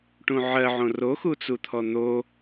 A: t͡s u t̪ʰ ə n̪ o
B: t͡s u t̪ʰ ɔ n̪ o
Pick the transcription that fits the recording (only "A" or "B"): B